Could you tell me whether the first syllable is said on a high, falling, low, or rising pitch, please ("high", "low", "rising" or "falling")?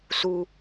high